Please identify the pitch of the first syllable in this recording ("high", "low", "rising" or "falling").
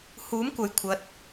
rising